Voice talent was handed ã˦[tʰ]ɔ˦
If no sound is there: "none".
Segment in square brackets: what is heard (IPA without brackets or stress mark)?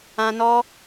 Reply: n